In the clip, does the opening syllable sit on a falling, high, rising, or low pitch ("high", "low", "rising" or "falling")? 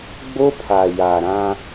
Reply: high